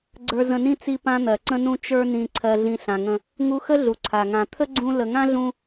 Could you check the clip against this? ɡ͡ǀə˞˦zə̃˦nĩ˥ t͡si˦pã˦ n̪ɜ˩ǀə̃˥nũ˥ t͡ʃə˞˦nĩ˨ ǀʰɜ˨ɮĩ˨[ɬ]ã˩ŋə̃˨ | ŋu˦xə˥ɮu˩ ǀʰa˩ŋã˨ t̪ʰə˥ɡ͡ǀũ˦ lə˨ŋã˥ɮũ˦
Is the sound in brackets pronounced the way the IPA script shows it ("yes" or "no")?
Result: yes